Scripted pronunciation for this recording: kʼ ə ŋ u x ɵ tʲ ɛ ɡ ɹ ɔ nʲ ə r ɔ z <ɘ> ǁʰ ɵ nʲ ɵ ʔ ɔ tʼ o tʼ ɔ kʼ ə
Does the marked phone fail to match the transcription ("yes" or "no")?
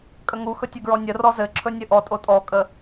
no